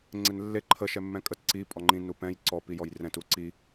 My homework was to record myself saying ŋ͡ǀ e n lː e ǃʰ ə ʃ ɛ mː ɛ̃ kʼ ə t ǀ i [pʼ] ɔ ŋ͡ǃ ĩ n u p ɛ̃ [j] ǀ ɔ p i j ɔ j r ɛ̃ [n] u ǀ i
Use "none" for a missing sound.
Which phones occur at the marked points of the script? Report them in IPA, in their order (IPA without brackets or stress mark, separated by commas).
pʼ, j, t